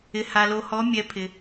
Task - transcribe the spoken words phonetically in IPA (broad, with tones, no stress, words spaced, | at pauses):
ɪ˨ha˨lo˨ hɔ˨˦mʲɛ˨˦pʰɪ˨